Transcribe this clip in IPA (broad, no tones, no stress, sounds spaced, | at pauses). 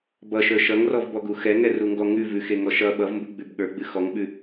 b ʌ ʃ ə˞ ʃ ʌ ŋ r ɔ v b ɔ ɡ u x ɛ ŋ ɛ r u ŋ ɡ ɔ ŋ ʉ v ʉ x e ŋ ɔ ʃ ʌ ɓ ʌ v m b u ɡ͡b ʉ b ɠ ə˞ ɡ͡b ɨ x ɔ ŋ ɓ ʉ